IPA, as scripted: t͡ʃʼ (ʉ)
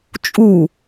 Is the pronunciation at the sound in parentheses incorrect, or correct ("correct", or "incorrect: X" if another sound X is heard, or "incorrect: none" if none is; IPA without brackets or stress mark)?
incorrect: u